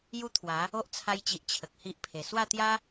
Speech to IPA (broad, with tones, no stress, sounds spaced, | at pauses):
j u˦ t̪ʰ w a˨˦ | o˦ ʔ t͡sʰ a˧ j t͡ɕ i˨ ʔ t͡ɕʰ ə˨ k̚ h i˦ ʔ pʰ e˨˩ s w a˥˧ t̪ j a˦